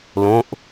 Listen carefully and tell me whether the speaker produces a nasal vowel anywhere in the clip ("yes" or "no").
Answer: yes